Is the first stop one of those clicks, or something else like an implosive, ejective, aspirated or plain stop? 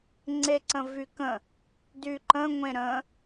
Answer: click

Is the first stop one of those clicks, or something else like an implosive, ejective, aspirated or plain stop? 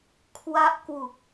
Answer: aspirated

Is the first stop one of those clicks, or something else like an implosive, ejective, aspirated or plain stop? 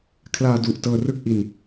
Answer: aspirated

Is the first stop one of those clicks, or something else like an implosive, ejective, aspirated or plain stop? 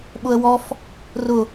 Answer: implosive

